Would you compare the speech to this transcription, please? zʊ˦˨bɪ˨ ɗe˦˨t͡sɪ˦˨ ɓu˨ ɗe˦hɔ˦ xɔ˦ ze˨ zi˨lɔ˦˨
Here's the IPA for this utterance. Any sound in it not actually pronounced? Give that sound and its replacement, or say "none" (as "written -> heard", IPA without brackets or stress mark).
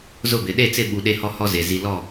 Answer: x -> h